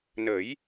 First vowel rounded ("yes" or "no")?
no